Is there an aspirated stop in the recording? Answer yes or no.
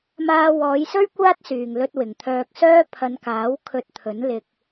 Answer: yes